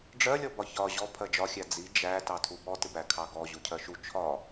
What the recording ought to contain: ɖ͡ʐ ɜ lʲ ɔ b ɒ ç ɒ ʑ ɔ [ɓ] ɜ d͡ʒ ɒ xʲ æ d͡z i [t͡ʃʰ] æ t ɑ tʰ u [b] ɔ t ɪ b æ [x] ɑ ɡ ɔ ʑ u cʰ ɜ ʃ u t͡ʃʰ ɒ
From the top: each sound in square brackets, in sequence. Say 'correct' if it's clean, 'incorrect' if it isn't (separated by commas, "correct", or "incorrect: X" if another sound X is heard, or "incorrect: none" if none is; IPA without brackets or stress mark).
incorrect: pʰ, incorrect: d͡ʒ, correct, incorrect: kʰ